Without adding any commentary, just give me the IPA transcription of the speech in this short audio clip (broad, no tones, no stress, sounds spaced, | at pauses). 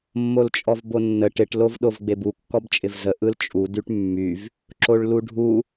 mː o l t͡ʃʼ ɔ v b o nː ə ʈ ɪ ʈ l o v ɗ o v ɡ͡b e b u kː ɔ b t͡ʃʼ ɪ v z ə ʔ ɯ l t͡ʃʼ u d y ʈ mː y v | ǁ o ɭ l u ɖʱ u